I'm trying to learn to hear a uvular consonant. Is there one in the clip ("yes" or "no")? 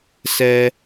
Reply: no